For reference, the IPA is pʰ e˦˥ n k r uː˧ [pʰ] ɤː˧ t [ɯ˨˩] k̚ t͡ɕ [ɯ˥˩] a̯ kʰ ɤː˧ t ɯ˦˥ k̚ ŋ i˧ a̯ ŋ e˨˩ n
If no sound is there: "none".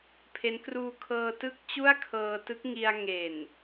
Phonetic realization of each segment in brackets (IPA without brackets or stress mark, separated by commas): kʰ, ɯ˥˩, u˥˩